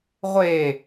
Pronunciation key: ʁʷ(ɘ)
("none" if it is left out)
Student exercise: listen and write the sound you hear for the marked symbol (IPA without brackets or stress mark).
e